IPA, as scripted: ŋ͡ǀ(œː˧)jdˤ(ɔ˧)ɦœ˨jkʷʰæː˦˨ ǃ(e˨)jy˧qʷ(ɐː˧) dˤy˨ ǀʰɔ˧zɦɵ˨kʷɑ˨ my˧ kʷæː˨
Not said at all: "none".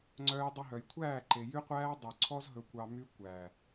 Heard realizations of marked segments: œː˧, ɵ˧, e˨, æː˧

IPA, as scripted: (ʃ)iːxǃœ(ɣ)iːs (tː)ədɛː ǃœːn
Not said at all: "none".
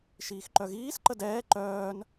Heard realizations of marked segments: ʃ, ɣ, ǃ

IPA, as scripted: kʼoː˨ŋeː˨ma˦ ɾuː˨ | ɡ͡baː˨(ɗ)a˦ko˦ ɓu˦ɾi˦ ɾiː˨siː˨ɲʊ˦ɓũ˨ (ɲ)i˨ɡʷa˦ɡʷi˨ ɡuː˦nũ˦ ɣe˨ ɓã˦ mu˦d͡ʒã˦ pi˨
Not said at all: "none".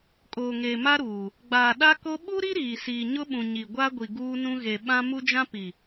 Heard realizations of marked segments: ɗ, ɲ

